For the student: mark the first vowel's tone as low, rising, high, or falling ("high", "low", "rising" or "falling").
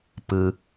low